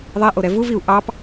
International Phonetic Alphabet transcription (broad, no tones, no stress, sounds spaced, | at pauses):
ðˤ ɛ ʔ o ɾ ɛ v u v i u̯ ʔ ɑ p